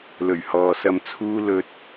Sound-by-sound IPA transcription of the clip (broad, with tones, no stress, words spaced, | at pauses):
lɵ˨˩ɥhɔː˨sɐ˧mt͡sʰuː˥ lɵ˧t̚